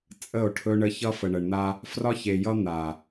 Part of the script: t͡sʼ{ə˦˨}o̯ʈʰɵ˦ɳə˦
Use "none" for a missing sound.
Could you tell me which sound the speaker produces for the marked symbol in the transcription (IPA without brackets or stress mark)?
ə˦˨